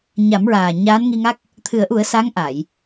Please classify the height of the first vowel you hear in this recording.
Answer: low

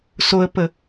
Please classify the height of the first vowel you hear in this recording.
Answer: mid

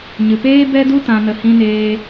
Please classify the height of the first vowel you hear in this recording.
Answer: high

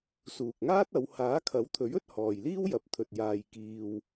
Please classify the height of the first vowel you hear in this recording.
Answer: high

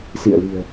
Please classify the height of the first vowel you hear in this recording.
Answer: high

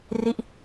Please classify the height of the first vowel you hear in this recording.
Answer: high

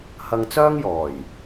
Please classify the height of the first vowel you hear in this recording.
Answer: low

